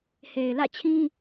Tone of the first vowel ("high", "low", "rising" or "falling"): low